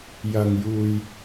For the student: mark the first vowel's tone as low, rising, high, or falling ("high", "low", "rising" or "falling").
low